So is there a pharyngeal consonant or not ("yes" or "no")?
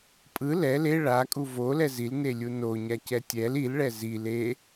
no